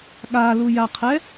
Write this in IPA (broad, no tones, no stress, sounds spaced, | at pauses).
ɠ a l u j a qʰ ɛ